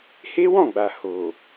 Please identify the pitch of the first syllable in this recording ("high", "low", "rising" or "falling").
high